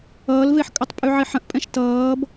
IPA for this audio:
ʌːlveħkʼʌtˤ pʼyʕiħə̃ʔpʼɛ̃ʃ tʌːb

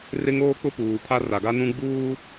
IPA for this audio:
rɪ˦ŋoː˦k͡pʊ˦ puː˨pʰa˦ ra˨ɡa˦nũ˦ ɡ͡buː˦

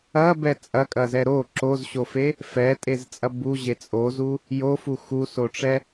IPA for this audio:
ɐbɛ t͡sʼɐkʼɐzɛ ɾo ǁozɕofe | fɛtʼezt͡sʼɐ buʑe t͡sʼozu | jofu xusoʈ͡ʂɛ

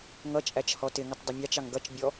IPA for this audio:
ŋʌt͡ʃʼæt͡ʃ hɔtɪŋətˤ dˤʊmʲɑt͡ʃɑŋ ɡʌt͡ʃbʲɔ

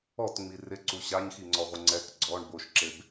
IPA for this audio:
ɔtŋ͡mi rɪǀu ɕaɲxiŋ͡ǀɔʁʷɪ ŋ͡ǀɛk ɡ͡ǀɔɳ boʃǁeb

